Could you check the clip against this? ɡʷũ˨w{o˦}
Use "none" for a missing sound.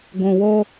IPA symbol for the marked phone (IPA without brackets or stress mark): o˦